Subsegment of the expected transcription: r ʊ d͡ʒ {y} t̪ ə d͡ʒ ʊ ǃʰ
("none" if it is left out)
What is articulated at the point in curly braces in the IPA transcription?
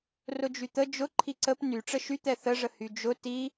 y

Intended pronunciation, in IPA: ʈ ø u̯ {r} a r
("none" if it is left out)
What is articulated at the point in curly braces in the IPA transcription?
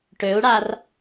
ɽ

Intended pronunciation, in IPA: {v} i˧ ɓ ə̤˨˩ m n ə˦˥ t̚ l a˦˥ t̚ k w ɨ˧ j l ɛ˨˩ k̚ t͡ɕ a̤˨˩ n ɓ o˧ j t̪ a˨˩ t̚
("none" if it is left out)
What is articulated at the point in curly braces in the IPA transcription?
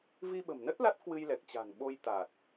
v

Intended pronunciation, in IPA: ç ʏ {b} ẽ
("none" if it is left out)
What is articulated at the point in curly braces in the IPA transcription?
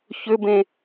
b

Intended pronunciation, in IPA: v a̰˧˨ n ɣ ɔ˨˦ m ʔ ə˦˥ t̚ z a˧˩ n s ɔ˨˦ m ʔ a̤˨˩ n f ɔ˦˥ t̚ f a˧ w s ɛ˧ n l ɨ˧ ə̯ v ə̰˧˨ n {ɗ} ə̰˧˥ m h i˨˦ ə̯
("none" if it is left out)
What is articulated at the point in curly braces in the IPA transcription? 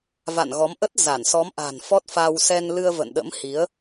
ɗ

